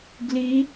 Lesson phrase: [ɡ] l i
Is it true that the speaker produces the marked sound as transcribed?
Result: yes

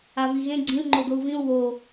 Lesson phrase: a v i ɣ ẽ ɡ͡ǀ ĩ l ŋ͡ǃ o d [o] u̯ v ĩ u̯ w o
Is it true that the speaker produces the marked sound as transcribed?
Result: yes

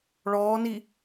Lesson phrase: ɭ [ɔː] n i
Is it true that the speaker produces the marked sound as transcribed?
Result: yes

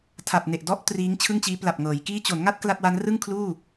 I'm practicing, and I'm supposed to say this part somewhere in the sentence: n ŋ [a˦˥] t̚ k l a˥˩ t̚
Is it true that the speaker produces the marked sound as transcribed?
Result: no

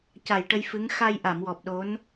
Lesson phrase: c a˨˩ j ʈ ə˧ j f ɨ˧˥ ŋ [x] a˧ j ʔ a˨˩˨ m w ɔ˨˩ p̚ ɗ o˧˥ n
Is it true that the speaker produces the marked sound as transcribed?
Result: yes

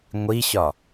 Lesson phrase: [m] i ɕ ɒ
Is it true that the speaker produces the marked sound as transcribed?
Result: no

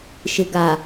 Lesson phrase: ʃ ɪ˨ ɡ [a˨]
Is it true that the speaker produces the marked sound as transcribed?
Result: yes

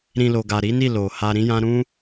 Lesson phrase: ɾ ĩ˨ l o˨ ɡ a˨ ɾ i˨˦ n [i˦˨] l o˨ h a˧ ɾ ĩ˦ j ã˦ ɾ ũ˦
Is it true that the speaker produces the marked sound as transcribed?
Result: yes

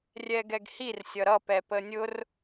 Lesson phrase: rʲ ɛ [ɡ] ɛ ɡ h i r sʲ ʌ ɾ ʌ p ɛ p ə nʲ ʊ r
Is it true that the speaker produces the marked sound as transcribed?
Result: yes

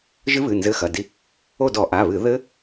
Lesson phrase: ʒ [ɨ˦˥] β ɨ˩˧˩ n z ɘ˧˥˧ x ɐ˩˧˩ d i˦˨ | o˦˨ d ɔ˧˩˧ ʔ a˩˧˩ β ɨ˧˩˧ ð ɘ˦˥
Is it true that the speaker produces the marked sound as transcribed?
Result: yes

